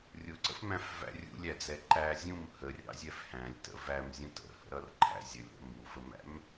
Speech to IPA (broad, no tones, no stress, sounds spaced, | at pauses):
rʲ ʊ ǀ ə̰ f m æ̃ f v æ̰ rʲ ṵ lʲ æ d͡z ɛ ǃ æ zʲ ũ m h ə rʲ ɑ̰ zʲ ɛ f h æ̃ lʲ t ə̰ v æ m zʲ ũ t ə̰ h ə̰ ɾ ʌ r ǃʰ æ̰ zʲ ə lʲ ɾ ə̰ m u f ə m æ̰ m